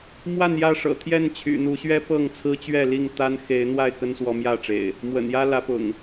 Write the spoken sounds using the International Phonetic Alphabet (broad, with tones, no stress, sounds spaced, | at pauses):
m w a˥˨ n j ä˥˨ ʂ ɤ̰˨˩ t̪ʰ j ɛ˥˨ n t͡ɕʰ y̰˨˩ n̪ u˨˦ ɕ ɥ ɛ˦ p ɤ˥˨ ŋ t͡sʰ ɹ̩˦ t͡ɕ ɥ ɛ˥˨ l i˥˨ ŋ t̪ a˦ n x e˨˦ ɪ̯ n̪ w a˥˨ ɪ̯ k ə˦ n s w ɔ˨˦ m j ä˥˨ ʈ͡ʂ ḛ˨˩ ɪ̯ | m w ə̰˨˩ n j ä˦ l ä˨˦ p ʊ̰˨˩ ŋ